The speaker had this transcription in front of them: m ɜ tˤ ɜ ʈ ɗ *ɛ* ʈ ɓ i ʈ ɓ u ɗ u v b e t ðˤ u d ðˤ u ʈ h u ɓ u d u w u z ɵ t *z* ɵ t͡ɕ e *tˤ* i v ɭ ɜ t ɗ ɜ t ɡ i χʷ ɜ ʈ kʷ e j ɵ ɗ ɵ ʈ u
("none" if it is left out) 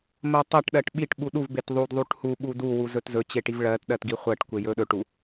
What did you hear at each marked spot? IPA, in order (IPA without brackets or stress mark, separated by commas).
ɜ, z, ʈ